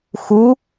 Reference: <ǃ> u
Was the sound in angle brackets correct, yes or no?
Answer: no